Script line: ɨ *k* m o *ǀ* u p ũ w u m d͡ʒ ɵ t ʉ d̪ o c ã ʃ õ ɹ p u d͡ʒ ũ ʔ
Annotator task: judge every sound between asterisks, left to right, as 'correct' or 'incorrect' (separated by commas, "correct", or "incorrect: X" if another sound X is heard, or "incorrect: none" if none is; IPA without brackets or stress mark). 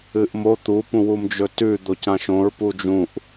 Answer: incorrect: ʔ, incorrect: t̪